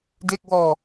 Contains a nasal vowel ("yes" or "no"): no